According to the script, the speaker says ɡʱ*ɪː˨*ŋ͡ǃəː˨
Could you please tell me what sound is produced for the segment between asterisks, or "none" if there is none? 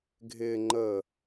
ɪː˨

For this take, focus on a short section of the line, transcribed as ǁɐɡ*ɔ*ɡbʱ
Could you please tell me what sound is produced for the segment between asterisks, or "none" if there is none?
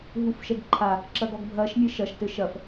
ɔ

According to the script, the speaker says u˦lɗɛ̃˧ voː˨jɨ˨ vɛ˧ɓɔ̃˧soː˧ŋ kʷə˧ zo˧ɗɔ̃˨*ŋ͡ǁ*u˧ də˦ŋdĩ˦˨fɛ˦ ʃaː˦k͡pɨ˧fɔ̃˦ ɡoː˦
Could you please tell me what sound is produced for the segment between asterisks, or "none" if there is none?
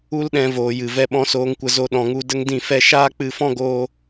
ŋ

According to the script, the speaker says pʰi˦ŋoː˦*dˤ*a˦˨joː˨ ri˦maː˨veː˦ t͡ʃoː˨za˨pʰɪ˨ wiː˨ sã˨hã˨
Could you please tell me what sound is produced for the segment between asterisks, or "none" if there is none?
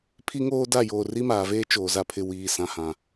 d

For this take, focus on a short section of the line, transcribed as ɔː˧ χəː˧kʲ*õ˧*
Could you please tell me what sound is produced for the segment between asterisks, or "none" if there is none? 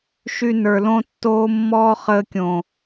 õ˨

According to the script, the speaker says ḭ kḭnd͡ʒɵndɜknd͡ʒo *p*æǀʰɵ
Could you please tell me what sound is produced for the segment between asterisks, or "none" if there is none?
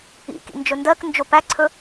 p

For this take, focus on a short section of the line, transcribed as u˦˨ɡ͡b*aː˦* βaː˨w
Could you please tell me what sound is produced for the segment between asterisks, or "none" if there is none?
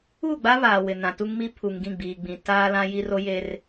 a˦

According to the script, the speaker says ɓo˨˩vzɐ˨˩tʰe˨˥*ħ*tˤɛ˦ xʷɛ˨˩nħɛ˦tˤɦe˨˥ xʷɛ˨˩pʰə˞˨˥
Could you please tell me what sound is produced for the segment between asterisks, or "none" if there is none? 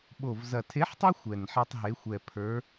ħ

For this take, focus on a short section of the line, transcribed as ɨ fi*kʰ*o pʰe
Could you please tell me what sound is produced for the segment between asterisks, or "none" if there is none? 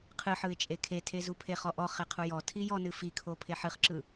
kʰ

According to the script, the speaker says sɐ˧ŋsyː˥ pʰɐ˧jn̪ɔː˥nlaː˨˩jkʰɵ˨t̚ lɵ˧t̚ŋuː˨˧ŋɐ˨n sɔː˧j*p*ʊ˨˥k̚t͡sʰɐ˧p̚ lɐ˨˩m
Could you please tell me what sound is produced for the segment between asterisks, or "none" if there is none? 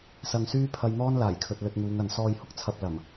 h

